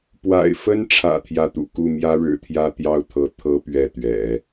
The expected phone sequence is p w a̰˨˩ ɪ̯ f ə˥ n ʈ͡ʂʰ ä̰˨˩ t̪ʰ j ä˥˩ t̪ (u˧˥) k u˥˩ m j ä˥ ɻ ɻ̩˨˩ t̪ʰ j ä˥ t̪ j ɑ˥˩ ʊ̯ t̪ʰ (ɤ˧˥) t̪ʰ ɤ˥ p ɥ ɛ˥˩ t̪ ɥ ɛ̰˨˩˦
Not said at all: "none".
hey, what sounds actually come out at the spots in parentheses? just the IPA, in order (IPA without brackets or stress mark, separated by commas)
ṵ˨˩, ɤ˧˥